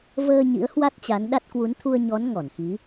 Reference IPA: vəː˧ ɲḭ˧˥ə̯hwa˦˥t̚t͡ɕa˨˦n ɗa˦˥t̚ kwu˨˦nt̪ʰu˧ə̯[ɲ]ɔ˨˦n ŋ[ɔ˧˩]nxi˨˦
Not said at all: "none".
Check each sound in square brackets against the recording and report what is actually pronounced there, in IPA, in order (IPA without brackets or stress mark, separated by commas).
ɲ, ɔ˧˩